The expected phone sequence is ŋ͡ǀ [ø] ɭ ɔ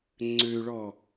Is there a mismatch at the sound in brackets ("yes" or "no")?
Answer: no